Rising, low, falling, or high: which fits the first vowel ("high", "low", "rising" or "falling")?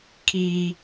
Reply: high